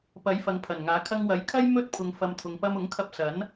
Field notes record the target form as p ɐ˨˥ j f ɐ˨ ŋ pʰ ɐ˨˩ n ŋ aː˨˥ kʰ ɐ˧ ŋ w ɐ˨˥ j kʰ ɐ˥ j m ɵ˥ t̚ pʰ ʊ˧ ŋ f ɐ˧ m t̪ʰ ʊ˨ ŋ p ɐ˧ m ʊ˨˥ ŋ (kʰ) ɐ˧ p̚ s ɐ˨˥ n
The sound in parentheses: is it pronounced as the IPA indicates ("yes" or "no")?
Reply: yes